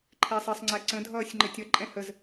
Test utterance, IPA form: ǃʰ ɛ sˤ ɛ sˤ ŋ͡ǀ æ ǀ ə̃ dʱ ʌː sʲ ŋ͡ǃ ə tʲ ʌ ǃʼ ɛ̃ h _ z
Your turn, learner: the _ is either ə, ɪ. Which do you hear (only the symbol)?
ə